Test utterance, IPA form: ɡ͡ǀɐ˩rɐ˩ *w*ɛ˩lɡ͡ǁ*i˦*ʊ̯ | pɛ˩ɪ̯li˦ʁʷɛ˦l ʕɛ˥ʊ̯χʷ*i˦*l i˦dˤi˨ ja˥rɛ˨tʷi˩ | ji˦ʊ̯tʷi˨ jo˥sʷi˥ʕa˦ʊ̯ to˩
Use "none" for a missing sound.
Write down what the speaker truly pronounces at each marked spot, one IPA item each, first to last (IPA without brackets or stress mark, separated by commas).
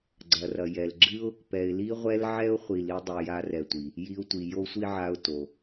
j, ɨ˦, i˨